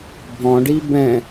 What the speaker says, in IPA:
bʱ ɔ̃ ɖ i b ɛ̃

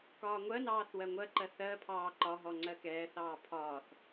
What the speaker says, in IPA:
k ɒː ŋʷ ɜ n ɑː θ w ɜ ŋʷ ɜ ǃ ɜ θ ɜ pʰ ɑː ǃ ɒ ɦ ɔ ŋ͡ǀ ɜ k ɛː θ ɑː pʰ ɒː θ

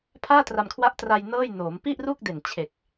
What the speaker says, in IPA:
pʰ aː˥˩ t r a˧ m kʰ w a˦˥ ʔ t r a˧ j n ɤː˥˩ j n oː˩˦ m p i˥˩ ʔ r u˥˩ k̚ d e˨˩ n t͡ɕʰ e˨˩ k̚

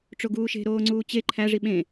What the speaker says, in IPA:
ʈ͡ʂ o ɡ uː ʃ e̤ ɾ oː ŋ͡ǀ uː t͡ɕ e ǃʰ æ ʐ i ɓ ẽ

